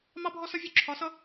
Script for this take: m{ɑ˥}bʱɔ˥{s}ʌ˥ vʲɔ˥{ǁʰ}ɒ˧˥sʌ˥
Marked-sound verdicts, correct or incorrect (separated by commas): correct, correct, correct